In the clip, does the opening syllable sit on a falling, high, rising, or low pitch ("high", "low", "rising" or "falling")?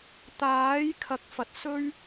rising